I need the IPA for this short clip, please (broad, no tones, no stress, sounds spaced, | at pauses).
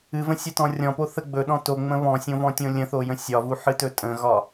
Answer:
ɨ v ə̃ sʲ ə t ɔ̃ rʲ ɔ̃ p o θ ə ɡ͡b ɵ ɗ ɔ̃ t o ŋ͡m ə̃ β ɔ̃ sʲ õ v ɔ̃ tʲ õ lʲ ə̃ θ o j ə̃ sʲ ɒ v u ħ ɨ t ɵ tʼ ə̃ ɣ ɒ